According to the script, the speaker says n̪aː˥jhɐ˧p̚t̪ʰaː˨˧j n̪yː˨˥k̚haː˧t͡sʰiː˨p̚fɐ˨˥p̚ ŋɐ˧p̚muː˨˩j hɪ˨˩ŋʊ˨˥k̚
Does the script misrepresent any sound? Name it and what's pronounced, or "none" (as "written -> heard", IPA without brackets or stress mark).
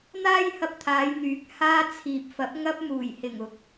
none